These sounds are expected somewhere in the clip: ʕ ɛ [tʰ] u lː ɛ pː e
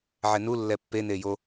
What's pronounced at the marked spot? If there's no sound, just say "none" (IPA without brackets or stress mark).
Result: n